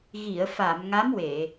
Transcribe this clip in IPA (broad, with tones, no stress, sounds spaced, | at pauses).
ɣ i˨˩˨ ə̯ f a˨˩˨ m ŋ a˧˥ m w e˨˩˨